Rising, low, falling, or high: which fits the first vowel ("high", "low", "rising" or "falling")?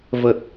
low